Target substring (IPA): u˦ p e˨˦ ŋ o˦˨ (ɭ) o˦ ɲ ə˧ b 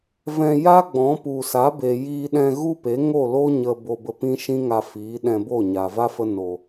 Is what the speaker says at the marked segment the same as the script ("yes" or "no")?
no